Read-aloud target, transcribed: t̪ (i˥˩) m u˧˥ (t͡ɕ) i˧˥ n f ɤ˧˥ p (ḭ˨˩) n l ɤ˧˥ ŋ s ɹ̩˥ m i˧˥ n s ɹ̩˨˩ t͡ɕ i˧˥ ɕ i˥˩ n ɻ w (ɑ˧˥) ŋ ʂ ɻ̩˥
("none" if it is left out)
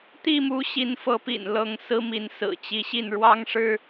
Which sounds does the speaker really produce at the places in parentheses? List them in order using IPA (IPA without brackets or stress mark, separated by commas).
i˥˩, ɕ, ḭ˨˩, ɑ˥